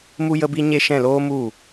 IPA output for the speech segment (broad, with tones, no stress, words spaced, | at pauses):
mu˧ jə˦bi˦ɲe˦ ʃɛ̃˦˨loː˦mu˦˨